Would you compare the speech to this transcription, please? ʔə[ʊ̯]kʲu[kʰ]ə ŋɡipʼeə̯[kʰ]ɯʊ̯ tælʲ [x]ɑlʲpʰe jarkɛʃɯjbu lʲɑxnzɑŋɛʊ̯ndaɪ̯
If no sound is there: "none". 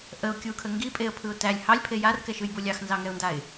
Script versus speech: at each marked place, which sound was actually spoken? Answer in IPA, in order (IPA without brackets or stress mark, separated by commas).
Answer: ʊ̯, kʰ, pʰ, h